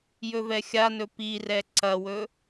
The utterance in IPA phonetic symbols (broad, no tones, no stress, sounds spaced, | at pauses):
j ɵ v ɛ xʲ a n ɵ p i r ɛ ǀ ɐ w ɵ